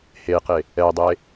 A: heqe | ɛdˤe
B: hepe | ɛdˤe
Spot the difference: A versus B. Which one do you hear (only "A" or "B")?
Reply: A